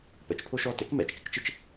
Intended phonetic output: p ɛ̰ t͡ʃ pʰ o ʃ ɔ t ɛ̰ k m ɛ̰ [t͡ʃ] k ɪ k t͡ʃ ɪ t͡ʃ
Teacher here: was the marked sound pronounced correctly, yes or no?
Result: yes